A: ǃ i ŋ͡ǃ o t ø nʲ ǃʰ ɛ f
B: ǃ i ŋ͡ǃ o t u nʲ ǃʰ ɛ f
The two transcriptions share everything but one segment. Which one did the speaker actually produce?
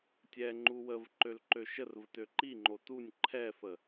B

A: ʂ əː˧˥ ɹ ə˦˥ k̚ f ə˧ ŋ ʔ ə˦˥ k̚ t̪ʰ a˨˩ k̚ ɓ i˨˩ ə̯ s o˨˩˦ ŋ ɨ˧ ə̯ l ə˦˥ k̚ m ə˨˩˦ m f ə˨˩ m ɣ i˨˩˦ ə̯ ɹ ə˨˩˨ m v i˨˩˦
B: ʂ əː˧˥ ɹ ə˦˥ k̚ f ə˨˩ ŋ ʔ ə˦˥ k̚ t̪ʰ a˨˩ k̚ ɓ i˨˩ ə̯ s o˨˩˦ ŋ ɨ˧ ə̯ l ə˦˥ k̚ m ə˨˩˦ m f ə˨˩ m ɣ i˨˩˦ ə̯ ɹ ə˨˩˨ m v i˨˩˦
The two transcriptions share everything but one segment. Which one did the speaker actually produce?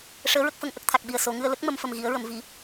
A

